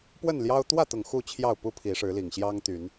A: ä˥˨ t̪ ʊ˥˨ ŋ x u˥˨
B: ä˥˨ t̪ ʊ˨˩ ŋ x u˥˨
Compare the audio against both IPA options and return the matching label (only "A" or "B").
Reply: B